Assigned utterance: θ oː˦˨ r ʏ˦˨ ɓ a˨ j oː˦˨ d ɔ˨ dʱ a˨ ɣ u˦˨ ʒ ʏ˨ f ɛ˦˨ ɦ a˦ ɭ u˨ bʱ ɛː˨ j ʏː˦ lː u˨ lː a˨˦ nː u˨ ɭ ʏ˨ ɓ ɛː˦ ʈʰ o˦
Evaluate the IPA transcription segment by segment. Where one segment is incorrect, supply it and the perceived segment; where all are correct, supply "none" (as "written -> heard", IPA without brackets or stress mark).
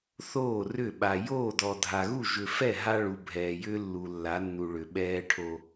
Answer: none